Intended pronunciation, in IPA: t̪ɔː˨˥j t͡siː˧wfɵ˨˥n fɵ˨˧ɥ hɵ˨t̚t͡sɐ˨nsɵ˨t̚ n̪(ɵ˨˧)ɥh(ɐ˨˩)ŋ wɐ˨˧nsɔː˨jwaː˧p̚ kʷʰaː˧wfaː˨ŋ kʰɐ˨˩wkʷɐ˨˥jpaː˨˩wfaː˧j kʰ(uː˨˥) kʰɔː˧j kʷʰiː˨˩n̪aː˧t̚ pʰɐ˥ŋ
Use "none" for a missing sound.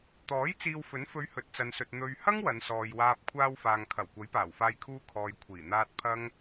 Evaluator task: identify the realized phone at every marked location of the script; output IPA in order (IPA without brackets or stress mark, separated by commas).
ɵ˨, ɐ˥, uː˧